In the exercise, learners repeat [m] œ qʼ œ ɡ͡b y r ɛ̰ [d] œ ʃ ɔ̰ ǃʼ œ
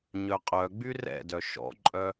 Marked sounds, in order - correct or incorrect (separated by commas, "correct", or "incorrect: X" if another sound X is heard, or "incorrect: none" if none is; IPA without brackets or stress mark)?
incorrect: ɲ, correct